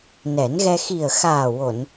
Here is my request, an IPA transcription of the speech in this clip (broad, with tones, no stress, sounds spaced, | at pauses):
n ɛ˨˩˦ n ɣ ɛ˧ x i˨˩ ə̯ x aː˨˩ w o˨˩˨ n